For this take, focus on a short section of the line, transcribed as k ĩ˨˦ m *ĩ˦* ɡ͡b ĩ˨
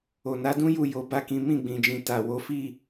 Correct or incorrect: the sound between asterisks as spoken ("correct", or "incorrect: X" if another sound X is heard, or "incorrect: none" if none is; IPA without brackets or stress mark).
incorrect: ĩ˦˨